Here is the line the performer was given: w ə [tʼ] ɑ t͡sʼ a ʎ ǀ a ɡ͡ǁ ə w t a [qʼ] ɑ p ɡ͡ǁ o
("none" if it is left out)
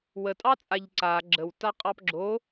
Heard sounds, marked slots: tʼ, qʼ

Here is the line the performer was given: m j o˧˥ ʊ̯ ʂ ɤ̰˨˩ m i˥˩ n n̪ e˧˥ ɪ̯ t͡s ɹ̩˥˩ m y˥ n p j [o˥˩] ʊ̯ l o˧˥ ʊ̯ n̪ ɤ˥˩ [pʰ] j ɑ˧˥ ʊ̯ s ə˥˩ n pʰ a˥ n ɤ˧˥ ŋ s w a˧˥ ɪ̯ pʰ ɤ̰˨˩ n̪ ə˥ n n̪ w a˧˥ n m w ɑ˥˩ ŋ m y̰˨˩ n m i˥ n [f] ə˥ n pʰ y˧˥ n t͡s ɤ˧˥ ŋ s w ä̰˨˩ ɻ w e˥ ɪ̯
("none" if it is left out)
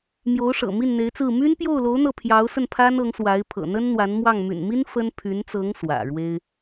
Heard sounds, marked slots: o˥˩, pʰ, f

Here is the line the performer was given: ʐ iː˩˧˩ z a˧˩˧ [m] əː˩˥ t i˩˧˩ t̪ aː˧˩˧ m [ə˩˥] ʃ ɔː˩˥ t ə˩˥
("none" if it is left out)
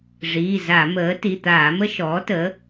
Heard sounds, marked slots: m, ə˥

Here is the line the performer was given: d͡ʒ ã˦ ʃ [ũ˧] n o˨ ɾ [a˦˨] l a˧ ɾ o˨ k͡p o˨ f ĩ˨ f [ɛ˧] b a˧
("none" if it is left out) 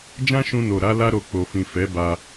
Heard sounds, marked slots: ũ˧, a˨˦, ɛ˨˦

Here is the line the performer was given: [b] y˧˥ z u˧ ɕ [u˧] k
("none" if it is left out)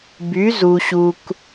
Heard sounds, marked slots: b, u˧

